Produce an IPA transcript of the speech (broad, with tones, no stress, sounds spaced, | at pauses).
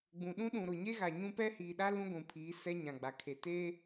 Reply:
ɡ͡b ũ˨ ɗ ũ˦ ɗ ũ˨ ɾ ʊ˨ ɲ e˦ ɣ a˨ ɲ ũ˦ p ɛ˦ h iː˨ ɗ a˦ l ũ˦ ɡʷ ũ˨ pʰ iː˨˦ s ɛ˦ ɲ ã˨ ɡ͡b a˨ kʰ e˨ t e˦